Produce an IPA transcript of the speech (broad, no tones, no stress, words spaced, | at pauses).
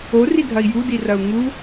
oridʱɐi̯ judirɐu̯ ŋu